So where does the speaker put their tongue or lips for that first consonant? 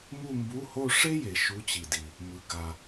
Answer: lips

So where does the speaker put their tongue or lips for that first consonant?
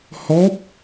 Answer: throat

